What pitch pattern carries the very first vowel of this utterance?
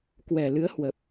low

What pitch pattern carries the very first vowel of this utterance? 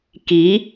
rising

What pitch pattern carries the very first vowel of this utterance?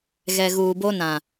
low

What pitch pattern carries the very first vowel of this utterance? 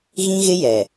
high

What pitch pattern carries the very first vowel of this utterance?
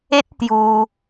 high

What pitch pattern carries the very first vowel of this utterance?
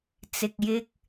low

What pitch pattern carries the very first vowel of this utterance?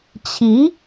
rising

